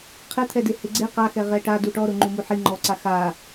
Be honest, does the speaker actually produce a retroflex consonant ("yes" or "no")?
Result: yes